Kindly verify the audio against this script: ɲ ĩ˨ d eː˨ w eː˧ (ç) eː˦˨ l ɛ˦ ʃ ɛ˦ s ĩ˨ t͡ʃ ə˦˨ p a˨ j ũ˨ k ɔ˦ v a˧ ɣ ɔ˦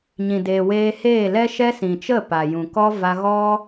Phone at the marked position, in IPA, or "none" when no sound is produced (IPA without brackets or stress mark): h